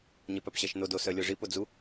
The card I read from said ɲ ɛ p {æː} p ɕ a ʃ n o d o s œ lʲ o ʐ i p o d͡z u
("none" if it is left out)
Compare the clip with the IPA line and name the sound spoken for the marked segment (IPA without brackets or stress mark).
æ